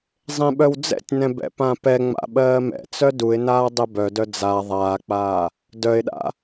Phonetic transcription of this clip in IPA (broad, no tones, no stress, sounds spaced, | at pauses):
zˤ ẽ ɓ œ w d͡z ɛ̰ tʲ n ɛ̃ b ɛ̰ p ã p ɛ ŋ͡m a̰ ɓ ɜː m ɛ̰ t͡s œ d u ɪ̯ n aː dˤ ɛ b œ d œ d͡z a ðˤ aː k͡p aː | d œ ɪ̯ ɗ a̰